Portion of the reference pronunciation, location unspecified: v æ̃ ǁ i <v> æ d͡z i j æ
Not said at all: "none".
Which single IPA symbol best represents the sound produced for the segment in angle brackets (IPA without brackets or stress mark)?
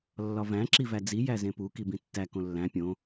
v